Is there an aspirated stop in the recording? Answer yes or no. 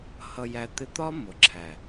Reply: yes